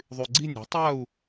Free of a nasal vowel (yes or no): yes